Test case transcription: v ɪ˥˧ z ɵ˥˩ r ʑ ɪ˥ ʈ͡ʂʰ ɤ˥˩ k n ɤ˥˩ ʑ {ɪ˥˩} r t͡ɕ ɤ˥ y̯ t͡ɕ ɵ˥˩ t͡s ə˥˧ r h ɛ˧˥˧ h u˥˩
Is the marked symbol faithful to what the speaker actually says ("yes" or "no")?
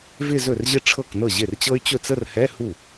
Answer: yes